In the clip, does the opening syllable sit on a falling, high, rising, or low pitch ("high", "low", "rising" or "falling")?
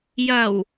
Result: low